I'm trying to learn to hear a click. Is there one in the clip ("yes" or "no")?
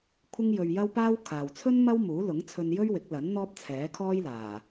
no